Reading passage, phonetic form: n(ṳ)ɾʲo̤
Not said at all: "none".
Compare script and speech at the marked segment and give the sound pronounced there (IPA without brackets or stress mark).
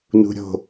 ṳ